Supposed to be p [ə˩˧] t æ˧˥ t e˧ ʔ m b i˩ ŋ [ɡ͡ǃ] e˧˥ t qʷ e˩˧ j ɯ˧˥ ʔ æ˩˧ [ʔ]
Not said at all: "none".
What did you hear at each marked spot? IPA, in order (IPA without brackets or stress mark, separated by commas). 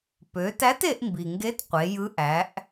ø˩˧, ɡ, ʔ